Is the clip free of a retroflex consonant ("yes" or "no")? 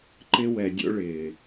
no